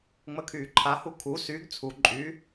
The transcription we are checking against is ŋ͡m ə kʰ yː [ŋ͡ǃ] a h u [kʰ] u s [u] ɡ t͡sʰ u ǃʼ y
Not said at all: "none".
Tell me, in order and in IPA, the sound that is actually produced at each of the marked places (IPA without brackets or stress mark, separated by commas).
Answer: ǃʰ, kʰ, y